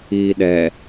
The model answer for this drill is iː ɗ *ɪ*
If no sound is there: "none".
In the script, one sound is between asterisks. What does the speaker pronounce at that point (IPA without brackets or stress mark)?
ɛ